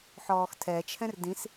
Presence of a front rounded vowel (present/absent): absent